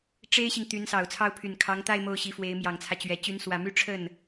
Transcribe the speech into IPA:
ʈ͡ʂ e˥ ɪ̯ ɕ i˨ ŋ t̪ y˧˥ n s ɑ˨˩ ʊ̯ t͡sʰ ɑ˥˩ ʊ̯ pʰ y˨˩ n kʰ ɑ˧˥ ŋ t̪ a˥˧ ɪ̯ m o˥˩ ʊ̯ ɕ i˧˥ f w e˧˥ ɪ̯ m j ɑ˨˩ ŋ t͡sʰ ä˦ t͡ɕ ɥ ɛ˨˩ t͡ɕ y˧˥ n s w ä˨˩ m y˥˧ ʈ͡ʂʰ ə˥˩ n

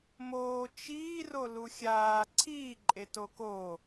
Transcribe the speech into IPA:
m oː t͡ʃ iː r o l u xʲ aː ǀʰ iː ǃʼ e t o k o

